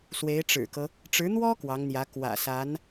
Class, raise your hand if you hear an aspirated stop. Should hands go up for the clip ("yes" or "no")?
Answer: no